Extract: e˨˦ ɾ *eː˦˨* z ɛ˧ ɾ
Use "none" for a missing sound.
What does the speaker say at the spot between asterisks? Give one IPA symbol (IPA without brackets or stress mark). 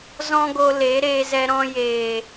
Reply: eː˧